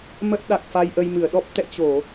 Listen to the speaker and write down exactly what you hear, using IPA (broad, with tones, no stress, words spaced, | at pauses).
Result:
mə˦˥t̚ɗa˨˩k̚fa˧j ʔə˧jmɨ˧˩ə̯ɗɔ˦˥p̚ t̪ɛ̰˧˨t͡ɕo˧˩˨